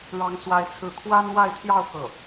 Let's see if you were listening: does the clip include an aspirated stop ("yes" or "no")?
yes